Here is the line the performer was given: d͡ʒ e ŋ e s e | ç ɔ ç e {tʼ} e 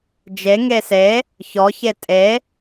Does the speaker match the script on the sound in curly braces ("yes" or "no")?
yes